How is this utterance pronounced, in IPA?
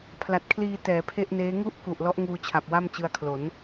pʰ l a˨˩ t̚ kʰ l iː˧ t ɛː˩˦ pʰ e˥˩ ʔ n eː˦˥ ŋ u˥˩ ʔ k u˨˩ ʔ l ɔ˦˥ ʔ ŋ uː˧ t͡ɕʰ a˨˩ p̚ w a˥˩ m t͡ɕ ɯ˧ a̯ kʰ l o˩˦ n

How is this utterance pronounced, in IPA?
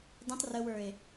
d ə̃ tˤ r ə w ə˞ e̯

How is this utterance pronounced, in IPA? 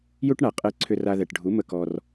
j u˦ ʈ ɳ a˨ qʼ ɛ˧ ǀʰ ʏ˧ r a˧ ð ɛ˨ ʈ ɖʱ u˨˦ m ə˧ k ɔ˧ r

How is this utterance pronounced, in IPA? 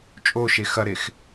t͡ʃʼ o ʃ e x ɐ ɾ e x

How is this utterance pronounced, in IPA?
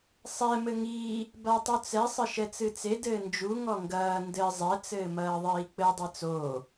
sˤ ɛ m ɘ ŋ iː | b a tˤ u t͡s ɛ sˤ ɘ ʃ ɛ t͡s ɨ t͡s e d ɘː n d͡ʒ u ŋ ɔ ŋ ɡ ɐː n d ɘ zˤ ɛ t͡s ɘː m ɐː ðˤ iː k͡p ɘ dˤ e t͡s oː

